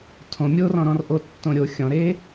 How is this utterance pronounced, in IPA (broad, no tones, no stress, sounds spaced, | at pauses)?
tʰ õ mʲ o r ɔ̃ ɾ ɔ̃ r ʔ o tː õ ɾʲ o xʲ ɔ̃ ɾ e